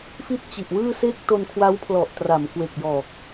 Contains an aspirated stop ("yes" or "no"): yes